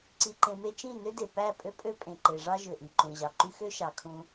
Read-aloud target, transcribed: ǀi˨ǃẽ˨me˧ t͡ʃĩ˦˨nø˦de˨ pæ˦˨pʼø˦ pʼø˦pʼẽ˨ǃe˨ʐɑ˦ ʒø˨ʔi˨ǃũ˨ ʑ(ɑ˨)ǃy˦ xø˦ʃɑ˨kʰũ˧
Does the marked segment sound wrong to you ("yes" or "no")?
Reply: no